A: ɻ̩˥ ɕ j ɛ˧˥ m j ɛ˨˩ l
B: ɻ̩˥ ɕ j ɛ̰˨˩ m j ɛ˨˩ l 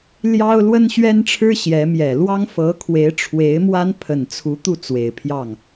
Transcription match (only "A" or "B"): A